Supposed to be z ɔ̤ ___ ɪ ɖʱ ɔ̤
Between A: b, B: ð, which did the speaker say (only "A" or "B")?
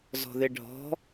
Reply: B